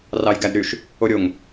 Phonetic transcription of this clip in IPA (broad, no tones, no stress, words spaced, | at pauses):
rɑjɡædɾyʃ | oɾʲoŋ